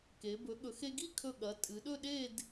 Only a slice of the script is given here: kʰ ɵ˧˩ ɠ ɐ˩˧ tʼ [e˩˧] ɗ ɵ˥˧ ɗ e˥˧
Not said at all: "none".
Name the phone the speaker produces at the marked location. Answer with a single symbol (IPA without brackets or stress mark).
ɨ˩˧